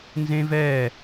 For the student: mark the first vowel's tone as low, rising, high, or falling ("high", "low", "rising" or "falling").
high